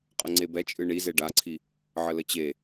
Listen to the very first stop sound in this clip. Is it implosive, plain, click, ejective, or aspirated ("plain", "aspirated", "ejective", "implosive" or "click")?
ejective